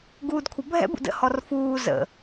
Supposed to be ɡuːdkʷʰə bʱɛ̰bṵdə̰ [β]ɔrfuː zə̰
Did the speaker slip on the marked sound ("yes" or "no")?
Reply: yes